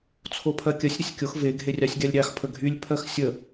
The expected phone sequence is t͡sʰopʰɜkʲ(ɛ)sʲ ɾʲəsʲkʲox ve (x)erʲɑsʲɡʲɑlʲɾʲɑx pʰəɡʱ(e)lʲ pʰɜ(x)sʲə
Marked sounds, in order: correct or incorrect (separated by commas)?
incorrect, incorrect, incorrect, correct